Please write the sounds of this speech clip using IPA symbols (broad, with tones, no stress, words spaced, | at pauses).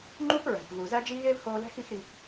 ŋ͡ǃu˥p ɹæ̤˩pvu˩zæ˥d͡ʒi˥ ɣe˥vhoː˧læ̤˥x i˧xɾi˩